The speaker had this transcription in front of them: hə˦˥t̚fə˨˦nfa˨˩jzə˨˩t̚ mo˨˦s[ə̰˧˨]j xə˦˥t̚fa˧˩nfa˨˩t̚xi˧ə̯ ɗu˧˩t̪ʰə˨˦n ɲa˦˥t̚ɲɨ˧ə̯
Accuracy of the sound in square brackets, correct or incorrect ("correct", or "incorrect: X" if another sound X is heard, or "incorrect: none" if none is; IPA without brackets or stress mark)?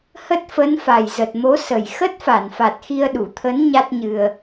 incorrect: ə˨˩